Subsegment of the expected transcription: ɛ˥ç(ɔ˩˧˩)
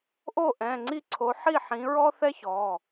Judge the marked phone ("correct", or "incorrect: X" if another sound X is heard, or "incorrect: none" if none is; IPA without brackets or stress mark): correct